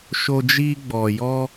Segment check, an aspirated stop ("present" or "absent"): absent